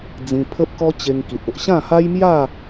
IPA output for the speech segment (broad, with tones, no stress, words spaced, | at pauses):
d͡zĩ˧ pʰə˦p̚kɔ˦ t͡ɕe˧ŋki˨t̚o˨ʔ ɕã˥˧ha˦jmja˥˧